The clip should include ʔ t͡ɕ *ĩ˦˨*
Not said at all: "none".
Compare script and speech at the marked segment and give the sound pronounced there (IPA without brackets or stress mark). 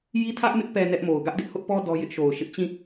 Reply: ĩ˦˨